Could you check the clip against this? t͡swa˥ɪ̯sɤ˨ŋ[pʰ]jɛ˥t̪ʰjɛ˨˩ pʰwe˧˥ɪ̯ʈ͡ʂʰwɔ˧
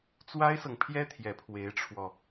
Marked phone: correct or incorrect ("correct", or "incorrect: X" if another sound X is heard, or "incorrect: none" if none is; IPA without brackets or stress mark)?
correct